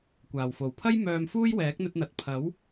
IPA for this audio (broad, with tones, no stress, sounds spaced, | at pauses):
kʷ aː˨˩ w f o˨˩ w pʰ ɐ˥ j m œː˧ m f uː˥ j w ɛː˨˥ k̚ n̪ ɵ˧ t̚ n̪ ɐ˨ t̚ pʰ ɐ˨˥ w